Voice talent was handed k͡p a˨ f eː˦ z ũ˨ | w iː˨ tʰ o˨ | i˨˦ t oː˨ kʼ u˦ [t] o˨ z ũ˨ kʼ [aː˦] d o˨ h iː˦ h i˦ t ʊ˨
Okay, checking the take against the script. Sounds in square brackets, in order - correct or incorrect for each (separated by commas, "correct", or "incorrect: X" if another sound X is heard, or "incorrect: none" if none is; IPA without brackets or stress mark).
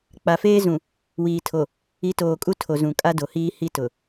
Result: incorrect: tʰ, incorrect: a˦